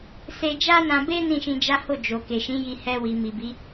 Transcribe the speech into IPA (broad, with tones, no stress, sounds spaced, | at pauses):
s e˧ d͡ʒ a˦ n ã˧ b e˦ n ĩ˦˨ ʃ ĩ˧ d͡ʒ a˦ h o˦˨ d͡ʒ o˨ k e˨ ʃ ĩ˨˦ j i˧ h ɛ˧ w i˨ m i˨ b i˨˦